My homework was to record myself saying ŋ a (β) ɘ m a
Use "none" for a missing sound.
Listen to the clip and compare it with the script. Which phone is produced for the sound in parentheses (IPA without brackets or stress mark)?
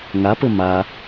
p